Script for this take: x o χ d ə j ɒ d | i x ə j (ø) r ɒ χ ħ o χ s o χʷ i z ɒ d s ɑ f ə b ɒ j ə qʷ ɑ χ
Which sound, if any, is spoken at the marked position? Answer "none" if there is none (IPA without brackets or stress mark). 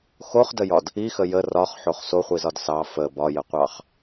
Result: ə